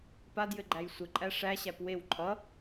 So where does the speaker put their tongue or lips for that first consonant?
lips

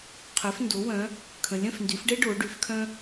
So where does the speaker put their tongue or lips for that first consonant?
uvula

